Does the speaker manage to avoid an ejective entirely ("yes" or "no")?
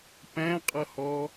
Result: no